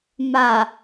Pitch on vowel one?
low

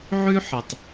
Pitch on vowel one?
high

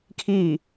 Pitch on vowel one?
falling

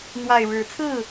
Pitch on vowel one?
low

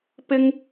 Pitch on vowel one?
high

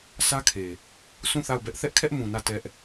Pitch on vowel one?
high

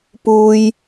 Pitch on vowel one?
low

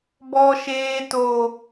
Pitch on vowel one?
high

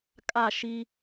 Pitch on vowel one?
falling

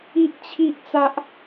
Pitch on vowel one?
high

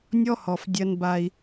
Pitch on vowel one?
high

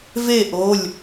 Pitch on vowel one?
falling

